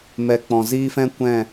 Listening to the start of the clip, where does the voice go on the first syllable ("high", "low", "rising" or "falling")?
low